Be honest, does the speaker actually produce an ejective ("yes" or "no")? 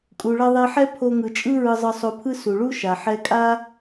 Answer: yes